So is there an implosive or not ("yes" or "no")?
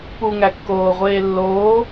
no